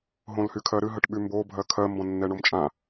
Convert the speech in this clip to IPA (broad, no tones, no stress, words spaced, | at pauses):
ɦõlhykʰɜɾɨ ɦəʈɓymbo bʱɜkʰɜ mbɔ̃nːɛɳomt͡ʃʼã